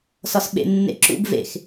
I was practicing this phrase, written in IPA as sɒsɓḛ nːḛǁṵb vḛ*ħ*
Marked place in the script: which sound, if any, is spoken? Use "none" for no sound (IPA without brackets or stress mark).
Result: x